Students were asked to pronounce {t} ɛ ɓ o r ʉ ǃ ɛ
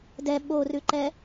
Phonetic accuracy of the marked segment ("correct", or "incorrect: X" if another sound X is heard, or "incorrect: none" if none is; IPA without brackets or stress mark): incorrect: d